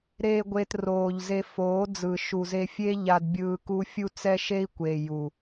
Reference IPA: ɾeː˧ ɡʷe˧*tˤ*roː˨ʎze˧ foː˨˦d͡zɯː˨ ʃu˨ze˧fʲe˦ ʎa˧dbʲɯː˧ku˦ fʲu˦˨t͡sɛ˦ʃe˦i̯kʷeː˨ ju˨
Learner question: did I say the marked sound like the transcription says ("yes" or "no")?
no